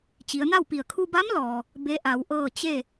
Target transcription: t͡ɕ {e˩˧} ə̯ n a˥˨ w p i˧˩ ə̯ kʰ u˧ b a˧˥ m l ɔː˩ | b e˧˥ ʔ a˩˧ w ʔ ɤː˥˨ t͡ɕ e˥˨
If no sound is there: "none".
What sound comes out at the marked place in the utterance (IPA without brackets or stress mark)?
i˩˧